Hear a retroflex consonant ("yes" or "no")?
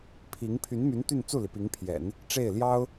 yes